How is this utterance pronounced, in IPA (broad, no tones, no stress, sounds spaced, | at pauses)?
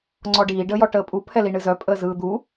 ŋ͡ǀ ɔ ɖ iː ɖ əː j ɔ ʈ əː pʼ u pʰ ɛ l i ɳ ɨ z œ pʼ əː z ɯː d̪ u